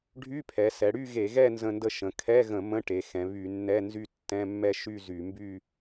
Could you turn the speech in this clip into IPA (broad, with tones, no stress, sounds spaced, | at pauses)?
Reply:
ɖʱ y˧˥˧ pʰ ɛ˩˧ s ɛ˩˧ ɽ y˥˧ ɣ e˧˩˧ ɣ ɛ˥˧ n z ə̃˧ n d ə˧ ʃ ə̃˩˧ kʰ ɛ˧˥˧ ɣ ə̃˧˩˧ m ə̃˧˥˧ ʈ e˩˧ x ɛ̃˩˧ β y˧˩˧ nː ɛ˧˥˧ n z y˥˧ tː ɛ̃˧˥˧ mː ɛ˥˧ ʃ y˥˧ z y˧˩˧ m b y˥˧